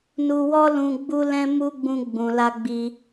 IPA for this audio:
n u˧ w ɔ˦ l ũ˧ ɡ͡b u˧ l ɛ̃˧ m u˧ ɡ͡b ũ˧ ɡ͡b ũ˨ l a˧ ɡ͡b i˧

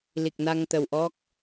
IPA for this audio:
l i˨˩ k̚ n a˧ ŋ t̪ ə˨˩ w ʔ ɔ˦˥ k̚

